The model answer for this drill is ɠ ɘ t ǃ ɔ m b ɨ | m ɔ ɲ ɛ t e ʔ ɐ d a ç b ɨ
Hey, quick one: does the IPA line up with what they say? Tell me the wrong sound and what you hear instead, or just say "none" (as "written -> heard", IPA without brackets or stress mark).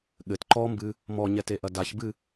none